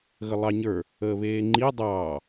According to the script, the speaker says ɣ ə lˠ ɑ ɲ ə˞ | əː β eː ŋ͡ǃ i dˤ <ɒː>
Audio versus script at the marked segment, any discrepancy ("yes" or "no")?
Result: yes